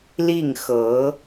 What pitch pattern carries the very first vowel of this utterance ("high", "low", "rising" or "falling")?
falling